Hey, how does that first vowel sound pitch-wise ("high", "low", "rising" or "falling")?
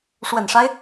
low